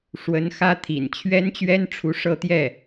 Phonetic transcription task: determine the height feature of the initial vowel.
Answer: mid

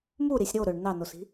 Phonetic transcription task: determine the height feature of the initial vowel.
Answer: high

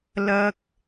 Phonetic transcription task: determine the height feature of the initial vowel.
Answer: low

